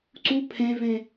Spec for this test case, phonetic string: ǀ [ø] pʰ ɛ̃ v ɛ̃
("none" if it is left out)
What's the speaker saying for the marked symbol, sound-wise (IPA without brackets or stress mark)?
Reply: u